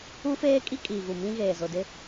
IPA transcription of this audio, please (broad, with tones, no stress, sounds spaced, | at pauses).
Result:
u˦ f eː˦ kʼ i˦ kʼ iː˨ ɣ u˨ m ĩ˦ ɣ eː˨ z ʊ˨ d ɪ˦